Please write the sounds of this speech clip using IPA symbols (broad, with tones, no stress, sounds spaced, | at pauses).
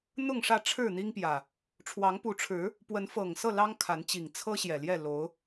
n̪ ʊ˥˨ ŋ ʂ ä˥˨ ʈ͡ʂʰ ɻ̩˥˨ n̪ i˦ ŋ p j ä˨˩ | ʈ͡ʂʰ w ɑ˨˦ ŋ p u˨˦ ʈ͡ʂʰ ɻ̩˨˦ | p w ə˨˦ n f ɤ˨˩ ŋ s ɤ˥˨ l ɑ˦ ŋ kʰ a˨˦ n t͡ɕ i˨˩ ŋ t͡sʰ ɤ˦ ɕ j ɛ˨˩ l j ɛ˥˨ l o˨˦ ʊ̯